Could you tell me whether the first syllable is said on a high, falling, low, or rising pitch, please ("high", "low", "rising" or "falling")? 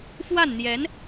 falling